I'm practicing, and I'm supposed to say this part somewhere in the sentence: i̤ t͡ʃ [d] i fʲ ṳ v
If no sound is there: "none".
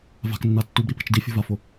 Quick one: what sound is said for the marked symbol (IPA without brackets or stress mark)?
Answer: d